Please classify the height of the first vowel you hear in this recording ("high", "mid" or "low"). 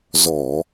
mid